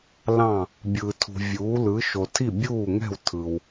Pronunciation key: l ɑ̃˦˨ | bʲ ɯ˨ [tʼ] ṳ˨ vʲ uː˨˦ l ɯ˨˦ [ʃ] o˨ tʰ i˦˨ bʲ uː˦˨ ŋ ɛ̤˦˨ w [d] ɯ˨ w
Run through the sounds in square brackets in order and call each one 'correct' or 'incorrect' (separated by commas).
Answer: incorrect, correct, incorrect